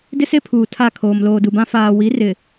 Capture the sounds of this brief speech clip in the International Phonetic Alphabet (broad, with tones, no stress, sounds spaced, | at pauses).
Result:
d ɪ˦ s e˦ pʰ uː˨ tʰ a˦˨ kʰ oː˨ m l oː˨ d u˨ b ã˦ f aː˨ w i˨˦ r ɪ˨